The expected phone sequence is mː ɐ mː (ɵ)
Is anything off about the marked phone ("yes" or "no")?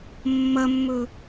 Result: no